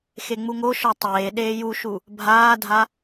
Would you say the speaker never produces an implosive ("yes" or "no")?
no